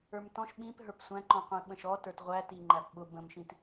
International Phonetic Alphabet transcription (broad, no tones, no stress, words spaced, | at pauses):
ə˞mtɔ̃ʃ ɓĩp ɦə˞psʷæ̃ǃɔ̃ qʷĩɓə̃ʃɔ tə˞tʁʷæ tiŋ͡ǃæpɓʊ bə̃mʃĩt